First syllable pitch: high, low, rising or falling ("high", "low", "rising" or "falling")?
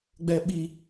high